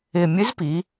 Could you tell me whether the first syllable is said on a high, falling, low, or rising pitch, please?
low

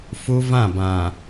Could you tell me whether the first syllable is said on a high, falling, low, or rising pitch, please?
high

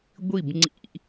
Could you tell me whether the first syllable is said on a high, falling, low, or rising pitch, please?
falling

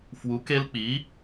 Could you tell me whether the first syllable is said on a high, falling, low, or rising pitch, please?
rising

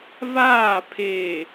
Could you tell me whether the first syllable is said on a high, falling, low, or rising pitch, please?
falling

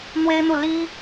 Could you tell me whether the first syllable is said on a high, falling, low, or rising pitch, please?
high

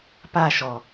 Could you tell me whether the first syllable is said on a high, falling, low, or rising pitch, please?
falling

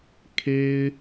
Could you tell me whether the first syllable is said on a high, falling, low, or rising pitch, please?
high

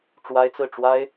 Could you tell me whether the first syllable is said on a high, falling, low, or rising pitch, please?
high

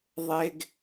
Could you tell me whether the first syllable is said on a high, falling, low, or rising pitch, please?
high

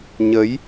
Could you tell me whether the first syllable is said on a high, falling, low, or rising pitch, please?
rising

